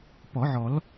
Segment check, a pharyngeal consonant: present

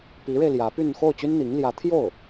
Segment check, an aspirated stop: present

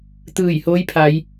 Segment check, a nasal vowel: absent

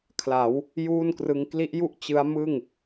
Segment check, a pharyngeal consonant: absent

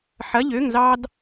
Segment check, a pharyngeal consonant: present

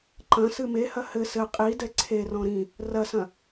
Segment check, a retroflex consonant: absent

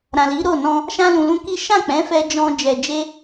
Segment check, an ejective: absent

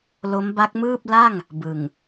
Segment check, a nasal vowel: absent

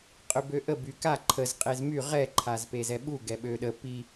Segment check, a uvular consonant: present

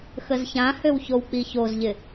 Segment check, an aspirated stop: absent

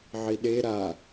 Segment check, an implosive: present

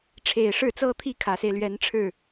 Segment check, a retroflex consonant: present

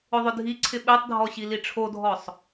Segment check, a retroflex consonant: present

